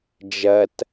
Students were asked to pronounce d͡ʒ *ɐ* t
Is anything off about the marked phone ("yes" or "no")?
no